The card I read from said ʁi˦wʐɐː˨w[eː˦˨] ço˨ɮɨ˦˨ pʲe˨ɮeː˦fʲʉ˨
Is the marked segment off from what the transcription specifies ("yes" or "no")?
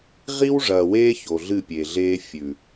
yes